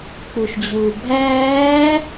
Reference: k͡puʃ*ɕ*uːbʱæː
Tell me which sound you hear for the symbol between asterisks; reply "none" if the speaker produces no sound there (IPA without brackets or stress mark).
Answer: d͡ʑ